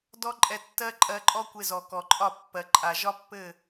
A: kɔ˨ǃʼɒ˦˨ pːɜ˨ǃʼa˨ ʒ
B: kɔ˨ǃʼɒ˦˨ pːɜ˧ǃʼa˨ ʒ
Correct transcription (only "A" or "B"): A